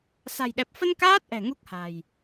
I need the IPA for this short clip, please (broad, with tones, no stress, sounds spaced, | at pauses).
s a̤˨˩ j ɗ ɛ˨˩ p̚ f ə˧ n k aː˦˥ t̚ ʔ ɛ̤˨˩ ŋ u˦˥ k̚ h a̤˨˩ j